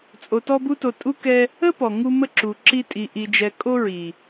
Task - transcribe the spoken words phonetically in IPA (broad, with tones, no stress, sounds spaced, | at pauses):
t͡sʼ o˧ t ɔ˦ b u˦ t o˧ tʼ u˦ k ɛ˦ | ə˦ p ɔ˨ ŋ u˦ m ə˦˨ ǁ u˨ ǁ i˦ tʼ i˧ ʔ i˧ d͡ʒ ɛ˧ kʼ o˦ ɹ i˨